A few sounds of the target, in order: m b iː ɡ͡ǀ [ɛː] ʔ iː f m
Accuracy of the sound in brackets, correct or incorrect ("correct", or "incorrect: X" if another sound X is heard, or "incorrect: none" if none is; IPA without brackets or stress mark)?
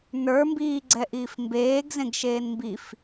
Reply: incorrect: ɛ